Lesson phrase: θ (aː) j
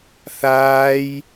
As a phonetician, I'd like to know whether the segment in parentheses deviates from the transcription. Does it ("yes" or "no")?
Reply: no